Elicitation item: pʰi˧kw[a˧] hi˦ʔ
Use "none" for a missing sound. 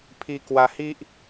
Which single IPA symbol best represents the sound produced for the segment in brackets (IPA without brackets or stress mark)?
a˧